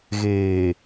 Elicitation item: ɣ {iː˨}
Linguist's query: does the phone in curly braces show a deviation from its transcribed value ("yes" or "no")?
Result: yes